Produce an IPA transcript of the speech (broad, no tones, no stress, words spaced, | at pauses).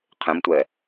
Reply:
qʰẽmtʷɛ